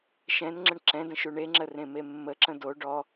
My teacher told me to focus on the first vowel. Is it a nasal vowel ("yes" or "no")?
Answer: yes